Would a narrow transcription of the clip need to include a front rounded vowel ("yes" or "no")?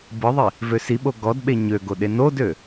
yes